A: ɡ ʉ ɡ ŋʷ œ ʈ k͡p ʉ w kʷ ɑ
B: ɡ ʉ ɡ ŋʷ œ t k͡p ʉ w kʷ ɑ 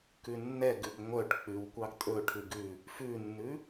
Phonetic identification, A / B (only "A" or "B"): A